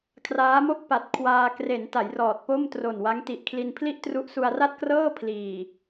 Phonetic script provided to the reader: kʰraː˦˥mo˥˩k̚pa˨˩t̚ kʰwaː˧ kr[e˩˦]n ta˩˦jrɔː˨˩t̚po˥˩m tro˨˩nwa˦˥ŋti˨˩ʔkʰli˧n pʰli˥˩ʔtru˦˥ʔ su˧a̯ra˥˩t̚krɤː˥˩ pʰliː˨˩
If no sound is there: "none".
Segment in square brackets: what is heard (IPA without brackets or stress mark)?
e˩˦